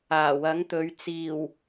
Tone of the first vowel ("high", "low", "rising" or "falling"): low